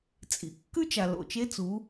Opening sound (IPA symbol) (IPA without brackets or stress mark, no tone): t͡sʼ